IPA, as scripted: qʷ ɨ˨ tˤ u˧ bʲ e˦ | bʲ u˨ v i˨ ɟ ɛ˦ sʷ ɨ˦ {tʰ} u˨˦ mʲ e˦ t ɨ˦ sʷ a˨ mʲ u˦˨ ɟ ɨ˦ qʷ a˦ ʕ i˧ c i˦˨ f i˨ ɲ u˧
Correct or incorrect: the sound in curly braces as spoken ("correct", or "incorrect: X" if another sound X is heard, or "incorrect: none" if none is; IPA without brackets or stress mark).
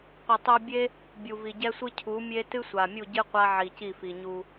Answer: incorrect: cʰ